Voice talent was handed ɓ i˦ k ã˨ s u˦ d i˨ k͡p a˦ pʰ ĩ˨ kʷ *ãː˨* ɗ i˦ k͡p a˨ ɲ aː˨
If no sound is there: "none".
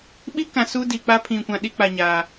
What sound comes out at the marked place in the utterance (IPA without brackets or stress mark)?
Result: ã˨